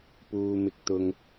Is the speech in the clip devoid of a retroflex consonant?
yes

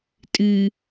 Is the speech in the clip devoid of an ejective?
no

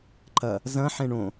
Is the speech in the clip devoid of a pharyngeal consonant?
no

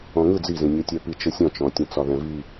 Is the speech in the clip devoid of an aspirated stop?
yes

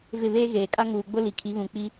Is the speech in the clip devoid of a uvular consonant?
yes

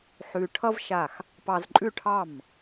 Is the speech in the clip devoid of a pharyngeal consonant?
no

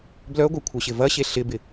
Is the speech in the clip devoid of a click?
yes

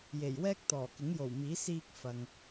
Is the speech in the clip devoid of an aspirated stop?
yes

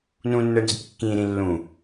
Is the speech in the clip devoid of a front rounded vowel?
yes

